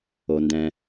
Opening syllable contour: low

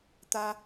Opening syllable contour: high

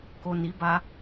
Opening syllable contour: low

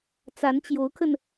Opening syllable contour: rising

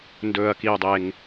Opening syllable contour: low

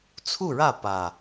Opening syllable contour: falling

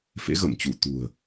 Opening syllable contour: rising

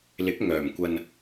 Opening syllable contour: rising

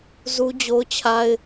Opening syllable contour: high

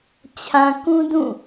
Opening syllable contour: low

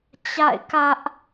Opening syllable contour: falling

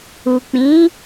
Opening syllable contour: low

